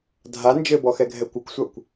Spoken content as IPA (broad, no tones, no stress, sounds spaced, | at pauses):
dʱ a n d͡ʒ ɘ b ɔ x ɛ ɡʱ ɛ kʷ ɘ kʷ sʷ a kʷ